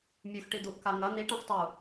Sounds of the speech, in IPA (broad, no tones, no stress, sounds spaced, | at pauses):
mʲ ʉ x ʈ i d̪ u ʔ k a ŋ ɐ n̪ i ʈ ã x tˤ u